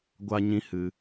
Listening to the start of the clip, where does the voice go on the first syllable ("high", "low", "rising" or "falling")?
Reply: high